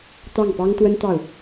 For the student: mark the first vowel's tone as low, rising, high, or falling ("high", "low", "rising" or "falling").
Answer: falling